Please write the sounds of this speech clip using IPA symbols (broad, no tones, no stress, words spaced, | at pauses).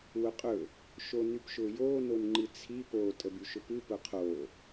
wʊqʼɵ | ʃonypʃʊːjoː nonŋ͡ǃɨt͡sʰi po tʼəbyʃʊpɨ pʊqʰoː